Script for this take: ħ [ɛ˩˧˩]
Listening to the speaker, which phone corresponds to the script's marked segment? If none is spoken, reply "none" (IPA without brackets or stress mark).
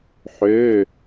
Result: ø˩˧˩